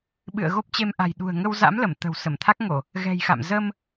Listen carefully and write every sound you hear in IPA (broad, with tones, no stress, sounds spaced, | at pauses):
ɓ ɨ̰˧˨ ə̯ ɣ o˦˥ p̚ t͡ɕ e˧ m ʔ a̤˨˩ j ɗ ṳ˨˩ ə̯ ŋ ə˧ w z a̰˧˥ m l ə˧˩ m t̪ ə̤ː˨˩ w s ə˧˩ m t̪ʰ a˦˥ k̚ ŋ o˧˩˨ | ɣ ɛ̤˨˩ j x a̰˧˨ m z əː˧ m